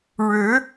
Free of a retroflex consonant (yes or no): no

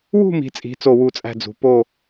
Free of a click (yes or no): yes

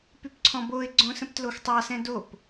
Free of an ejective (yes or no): yes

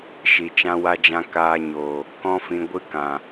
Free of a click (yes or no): yes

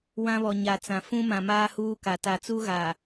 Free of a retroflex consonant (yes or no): yes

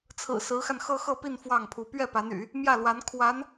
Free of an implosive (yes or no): yes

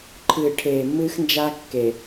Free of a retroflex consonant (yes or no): no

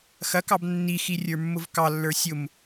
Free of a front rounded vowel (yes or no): yes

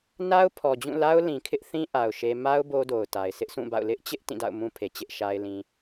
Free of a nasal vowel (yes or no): no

